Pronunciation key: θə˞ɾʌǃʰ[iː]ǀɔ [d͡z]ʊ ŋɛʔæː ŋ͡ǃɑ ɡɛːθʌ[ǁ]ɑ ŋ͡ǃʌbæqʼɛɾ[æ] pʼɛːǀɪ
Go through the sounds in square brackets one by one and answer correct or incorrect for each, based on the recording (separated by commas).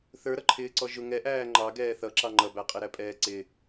incorrect, incorrect, correct, correct